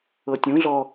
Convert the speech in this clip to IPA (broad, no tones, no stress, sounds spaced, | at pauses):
ɤ tʲ ũ ɮ ɔ